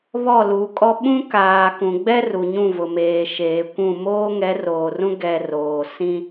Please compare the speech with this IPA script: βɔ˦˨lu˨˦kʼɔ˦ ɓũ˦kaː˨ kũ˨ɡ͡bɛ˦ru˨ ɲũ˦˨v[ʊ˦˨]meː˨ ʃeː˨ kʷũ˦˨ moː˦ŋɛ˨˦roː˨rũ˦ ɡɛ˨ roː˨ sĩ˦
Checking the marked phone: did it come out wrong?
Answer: yes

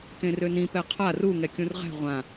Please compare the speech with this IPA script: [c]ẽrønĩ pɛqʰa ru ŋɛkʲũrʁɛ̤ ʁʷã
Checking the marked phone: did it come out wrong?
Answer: yes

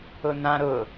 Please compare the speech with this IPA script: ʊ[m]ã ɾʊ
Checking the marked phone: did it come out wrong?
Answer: yes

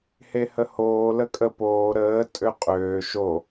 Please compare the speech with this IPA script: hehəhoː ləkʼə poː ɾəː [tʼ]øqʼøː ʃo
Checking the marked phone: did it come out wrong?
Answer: no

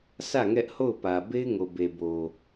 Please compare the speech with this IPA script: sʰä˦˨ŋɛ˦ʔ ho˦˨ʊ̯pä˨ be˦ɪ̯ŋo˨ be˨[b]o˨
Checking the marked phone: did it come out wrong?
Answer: no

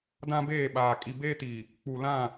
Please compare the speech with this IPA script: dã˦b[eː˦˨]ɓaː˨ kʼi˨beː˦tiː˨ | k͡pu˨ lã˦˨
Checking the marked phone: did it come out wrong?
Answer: no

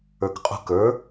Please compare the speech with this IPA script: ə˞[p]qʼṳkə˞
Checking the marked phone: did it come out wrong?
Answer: yes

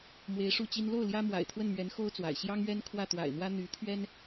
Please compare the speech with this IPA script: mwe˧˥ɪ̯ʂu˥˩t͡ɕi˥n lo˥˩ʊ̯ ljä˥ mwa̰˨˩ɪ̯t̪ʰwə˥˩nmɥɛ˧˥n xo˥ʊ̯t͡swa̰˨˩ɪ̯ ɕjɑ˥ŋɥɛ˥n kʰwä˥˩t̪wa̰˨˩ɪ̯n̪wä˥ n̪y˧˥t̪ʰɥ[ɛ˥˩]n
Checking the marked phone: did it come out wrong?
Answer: yes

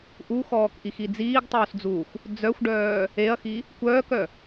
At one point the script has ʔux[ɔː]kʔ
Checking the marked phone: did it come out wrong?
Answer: no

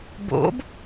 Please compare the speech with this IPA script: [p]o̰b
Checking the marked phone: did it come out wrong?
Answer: yes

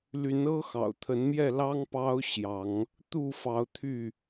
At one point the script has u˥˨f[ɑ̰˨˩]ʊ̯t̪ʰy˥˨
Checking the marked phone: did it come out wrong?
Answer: yes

